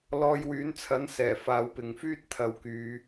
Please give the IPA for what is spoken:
l ɔː˧ j w yː˨˥ n t͡sʰ ɐ˨˥ n s ɛː˨˩ f aː˨˧ w p ɪ˨ ŋ f yː˥ t̚ t̪ʰ ɐ˨ w k yː˨

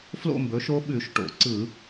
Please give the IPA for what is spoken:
f l o̰˥˧ m b ɵ˩˥ ʃ o˦˥ ɓ ʉ˧˩˧ ʃ ʈ o̰˨˩ ǀ ɯ˧˩˧

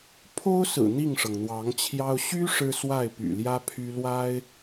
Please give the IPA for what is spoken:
pʰ o˥ ʊ̯ s ɹ̩˨˩ n̪ i˥˩ ŋ ʂ ɤ˩ ŋ n̪ w ɑ˧˥ ŋ t͡ɕʰ j ɑ˥ ʊ̯ ɕ y˥ ʂ ɻ̩˥ s w a˥˩ ɪ̯ p y̰˨˩ l j ä˥ pʰ y˥ l w a˥ ɪ̯

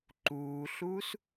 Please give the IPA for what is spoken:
ǃ uː ɬ uː s

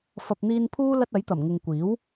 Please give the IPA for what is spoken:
f ɐ˨ p̚ n̪ iː˧ n pʰ uː˥ l ɐ˥ t̚ ɐ˨˥ j t̪ ɐ˨˩ m ŋ ɪ˨ ŋ kʷ iː˨˥ w

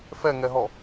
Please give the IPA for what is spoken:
f ɛ ŋ ɛ ɦ ɔ

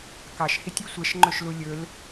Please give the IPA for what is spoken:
k ɑ ʃ h i tʲ y sʷ ɛ ʃ ŋ͡ǃ ɵ ʃ l u lʲ ɵ l

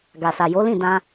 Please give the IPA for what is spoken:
ɡ a˨ s a˨ j o˨˦ l ĩ˦˨ d ã˧

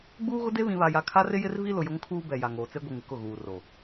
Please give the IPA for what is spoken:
ɡ͡b uː˦ ɣ ʊ˦ d e˦ β ĩ˨ β a˨ j a˨ kʰ a˦ r ɪ˦ j ɪ˦ r v i˦ l ʊ˨ j ʊ˦ ŋ kʰ uː˦ b ɛ˨ j a˨ ŋ oː˨ t͡s e˦ ɡʷ i˨ ŋ ɪ˨ k ʊ˦˨ ɣ uː˨ r o˨

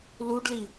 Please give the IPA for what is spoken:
l u ɖ l i

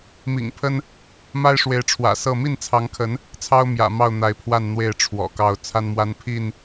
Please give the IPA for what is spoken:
m ḭ˨˩ ŋ pʰ ə˦ n | m a˦ ɪ̯ ʂ w e˨˦ ɪ̯ ʈ͡ʂʰ w ä̰˨˩ s ɤ˥˨ m i˥˨ n t͡sʰ ɑ˨˦ ŋ kʰ ə˨˦ n | t͡sʰ ɑ˦ ʊ̯ m j ä̰˨˩ m ɑ˥˨ ʊ̯ n̪ a˨˦ ɪ̯ pʰ w a˥˨ n n̪ w e˥˨ ɪ̯ ʈ͡ʂʰ w ɔ̰˨˩ k ɑ˥˨ ʊ̯ t͡sʰ a˦ n m w a˦ n pʰ i˥˨ n

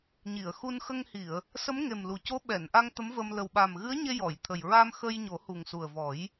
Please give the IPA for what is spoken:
ɲ i˨˩˨ ə̯ x u˧ n x ə˧ ŋ h i˨˩˨ ə̯ | s ə˧˥ m ŋ e˨˩ m l u˨˩ c o˧˥ ɓ ɛ˨˩˨ n ʔ a˧ ŋ t̪ ə˧˥ m v ə˧ m l ə˨˩ w ɓ a˨˩ m ɣ ɨ˧˥ ə̯ ɲ e˧ j ɔ˨˩˨ j t̪ʰ ə˨˩ j ɹ a˧ m x ə˧ j ɲ o˨˩˦ h u˨˩ ŋ s u˨˩ ə̯ v ɔ˨˩˦ j

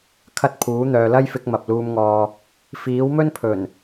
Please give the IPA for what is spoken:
kʰ ɐ˧ t̚ pʰ uː˨˥ n̪ œː˨ l ɐ˥ j f ɪ˧ k̚ m ɐ˨ p̚ l uː˨ m ŋ ɔː˨ | f iː˨˥ w m ɵ˥ n pʰ ɵ˨˩ n

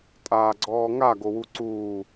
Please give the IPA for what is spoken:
tʼ aː ɡ͡ǀ ɔː ŋ a ɡ o w u ǀ uː

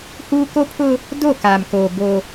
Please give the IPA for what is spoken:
h uː˦ k o˦ pʰ ʊ˦ | d o˦˨ k aː˨ m k oː˨ b o˦

